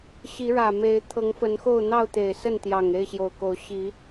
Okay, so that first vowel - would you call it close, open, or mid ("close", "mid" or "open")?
close